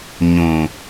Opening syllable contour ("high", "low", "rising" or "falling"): low